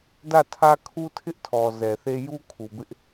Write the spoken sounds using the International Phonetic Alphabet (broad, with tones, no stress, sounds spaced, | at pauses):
d ä˦˨ tʰ ä˦ kʰ u˦ tʰ ɪ˦ ʔ tʰ ɔ˨ z ɛ˨ θ e˦ j u˦ kʰ u˨ b ɪ˦ ʔ